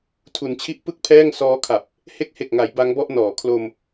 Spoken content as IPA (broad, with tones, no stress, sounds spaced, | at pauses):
tʰ u˩˦ n t͡ɕʰ i˦˥ ʔ p ɯ˥˩ k̚ pʰ ɛː˥˩ ŋ s ɔː˦˥ kʰ a˨˩ p̚ | h e˦˥ k̚ h e˨˩ k̚ ŋ a˩˦ j b a˦˥ ŋ b ɔ˥˩ ʔ n ɔː˩˦ kʰ l o˧ m